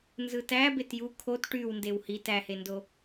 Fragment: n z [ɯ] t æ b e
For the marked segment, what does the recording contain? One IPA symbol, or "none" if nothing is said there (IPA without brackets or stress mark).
ɯ